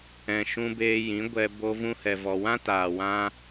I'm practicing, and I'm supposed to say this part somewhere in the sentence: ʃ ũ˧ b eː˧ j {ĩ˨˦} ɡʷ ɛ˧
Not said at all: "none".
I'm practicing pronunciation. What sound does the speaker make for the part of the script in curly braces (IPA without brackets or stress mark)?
ĩ˨˦